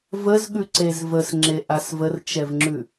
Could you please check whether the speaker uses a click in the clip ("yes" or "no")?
yes